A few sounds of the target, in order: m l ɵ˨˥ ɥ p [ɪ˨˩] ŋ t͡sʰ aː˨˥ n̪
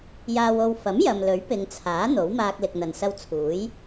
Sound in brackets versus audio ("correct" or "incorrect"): incorrect